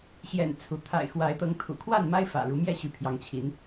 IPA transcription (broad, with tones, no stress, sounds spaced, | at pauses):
ɕ j ɛ̰˨˩ n t͡sʰ u˨˦ t̪ʰ a̰˨˩ ɪ̯ x w a˨˦ ɪ̯ t̪ ɤ˨˦ ŋ t̪ʰ ṵ˨˩ kʰ w a˥˨ n m a˦ ɪ̯ f ä̰˨˩ ɻ u˨˦ m j ɛ˥˨ ɕ y˨˦ pʰ j ɑ˨˦ ŋ t͡ɕʰ i˨˦ n